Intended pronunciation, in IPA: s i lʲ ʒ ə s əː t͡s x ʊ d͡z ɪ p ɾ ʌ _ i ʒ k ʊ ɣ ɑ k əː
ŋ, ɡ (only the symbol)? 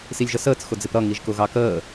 ŋ